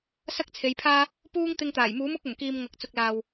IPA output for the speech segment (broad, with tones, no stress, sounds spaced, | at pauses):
s ɐ˥ k̚ t͡sʰ e˨˧ j pʰ aː˥ | p uː˥ ŋ t̪ ɪ˧ ŋ t̪ aː˨˩ j m uː˨˥ m ʊ˨˥ k̚ ɵ˨˩ n k iː˨ m ŋ ɐ˨ k̚ t͡s ʊ˨ k̚ l aː˨ w